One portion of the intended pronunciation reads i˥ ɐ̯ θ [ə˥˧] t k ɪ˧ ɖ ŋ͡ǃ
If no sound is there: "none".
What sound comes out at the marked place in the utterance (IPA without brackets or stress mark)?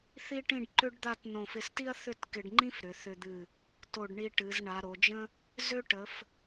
ʏ˥˧